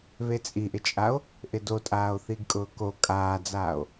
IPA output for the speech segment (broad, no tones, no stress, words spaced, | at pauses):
βet͡sʼiʔɪt͡ʃʼao̯ | ʔɪdotʼaːo̯ θiɡkʼʊːko kʼaːd͡zaːo̯